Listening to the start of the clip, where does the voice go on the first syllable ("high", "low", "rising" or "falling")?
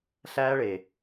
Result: high